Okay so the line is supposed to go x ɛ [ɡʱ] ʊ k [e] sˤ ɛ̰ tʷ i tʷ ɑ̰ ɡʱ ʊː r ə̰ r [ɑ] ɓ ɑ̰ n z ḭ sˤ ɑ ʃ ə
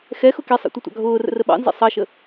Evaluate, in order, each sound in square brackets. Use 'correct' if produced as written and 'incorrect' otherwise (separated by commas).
incorrect, incorrect, incorrect